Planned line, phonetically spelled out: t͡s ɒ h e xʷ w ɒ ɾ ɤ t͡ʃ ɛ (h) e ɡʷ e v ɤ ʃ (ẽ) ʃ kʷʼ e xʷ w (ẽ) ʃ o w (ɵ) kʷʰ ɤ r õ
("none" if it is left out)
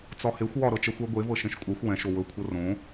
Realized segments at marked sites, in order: xʷ, ẽ, ɛ̃, ɵ

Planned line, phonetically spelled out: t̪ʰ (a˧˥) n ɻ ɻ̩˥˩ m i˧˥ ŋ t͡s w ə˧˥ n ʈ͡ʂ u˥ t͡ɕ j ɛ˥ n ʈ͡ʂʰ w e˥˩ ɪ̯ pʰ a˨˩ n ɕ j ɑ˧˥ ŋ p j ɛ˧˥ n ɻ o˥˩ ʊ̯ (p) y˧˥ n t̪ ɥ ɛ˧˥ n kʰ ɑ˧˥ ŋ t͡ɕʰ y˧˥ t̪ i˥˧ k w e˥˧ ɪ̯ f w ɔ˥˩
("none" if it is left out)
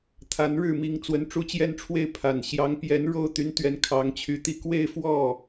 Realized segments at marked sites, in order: a˧˥, t̪

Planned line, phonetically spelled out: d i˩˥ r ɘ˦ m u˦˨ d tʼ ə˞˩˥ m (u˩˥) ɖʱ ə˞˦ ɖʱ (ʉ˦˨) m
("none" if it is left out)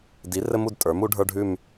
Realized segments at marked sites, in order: u˩˥, ʉ˦˨

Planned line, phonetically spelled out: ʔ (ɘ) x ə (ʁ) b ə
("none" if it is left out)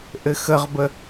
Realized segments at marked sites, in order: ɘ, ʁ

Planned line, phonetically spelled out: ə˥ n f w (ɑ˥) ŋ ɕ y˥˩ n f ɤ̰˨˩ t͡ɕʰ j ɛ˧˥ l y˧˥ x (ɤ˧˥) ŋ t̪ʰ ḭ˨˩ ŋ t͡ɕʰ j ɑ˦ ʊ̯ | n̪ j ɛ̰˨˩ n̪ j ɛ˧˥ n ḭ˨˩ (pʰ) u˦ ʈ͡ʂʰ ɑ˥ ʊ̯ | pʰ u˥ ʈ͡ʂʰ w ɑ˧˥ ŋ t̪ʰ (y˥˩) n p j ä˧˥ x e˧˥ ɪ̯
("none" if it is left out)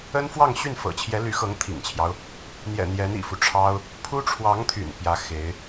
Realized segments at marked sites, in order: ɑ˥˧, ɤ˧˥, f, y̰˨˩

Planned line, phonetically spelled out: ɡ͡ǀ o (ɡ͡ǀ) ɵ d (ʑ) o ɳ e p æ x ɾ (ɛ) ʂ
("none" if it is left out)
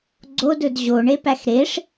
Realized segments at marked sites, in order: d, ʑ, e

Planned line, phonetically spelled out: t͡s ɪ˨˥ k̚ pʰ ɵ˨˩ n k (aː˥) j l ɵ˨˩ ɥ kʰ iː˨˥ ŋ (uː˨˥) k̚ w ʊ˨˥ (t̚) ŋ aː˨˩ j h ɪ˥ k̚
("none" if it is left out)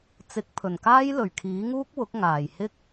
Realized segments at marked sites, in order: aː˥, uː˥, k̚

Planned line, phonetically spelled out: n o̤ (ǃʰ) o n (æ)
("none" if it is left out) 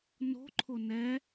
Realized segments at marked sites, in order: ǃʰ, ɛ

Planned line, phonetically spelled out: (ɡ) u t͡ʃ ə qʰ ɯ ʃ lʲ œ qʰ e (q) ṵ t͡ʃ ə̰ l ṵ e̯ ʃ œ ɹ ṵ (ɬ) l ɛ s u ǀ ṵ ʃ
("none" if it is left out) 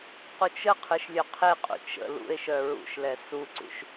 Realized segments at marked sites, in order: q, qʼ, ʃ

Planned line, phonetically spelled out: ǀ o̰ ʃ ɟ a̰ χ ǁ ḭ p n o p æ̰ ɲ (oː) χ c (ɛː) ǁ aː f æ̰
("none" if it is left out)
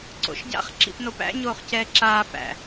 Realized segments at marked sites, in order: oː, ɛː

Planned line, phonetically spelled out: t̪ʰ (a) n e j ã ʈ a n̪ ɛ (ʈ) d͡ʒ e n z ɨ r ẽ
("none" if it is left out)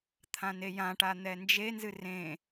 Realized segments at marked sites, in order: ã, n

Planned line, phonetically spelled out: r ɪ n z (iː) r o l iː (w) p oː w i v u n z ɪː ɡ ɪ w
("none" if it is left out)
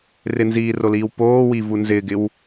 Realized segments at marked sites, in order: iː, w

